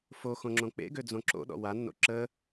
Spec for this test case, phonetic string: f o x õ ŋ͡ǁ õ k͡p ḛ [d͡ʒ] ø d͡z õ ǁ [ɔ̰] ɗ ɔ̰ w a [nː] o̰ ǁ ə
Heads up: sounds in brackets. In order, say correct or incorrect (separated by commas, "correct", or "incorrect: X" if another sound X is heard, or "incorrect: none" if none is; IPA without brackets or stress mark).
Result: incorrect: ɡ, incorrect: o̰, correct